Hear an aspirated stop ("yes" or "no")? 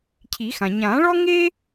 yes